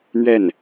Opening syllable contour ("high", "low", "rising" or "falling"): falling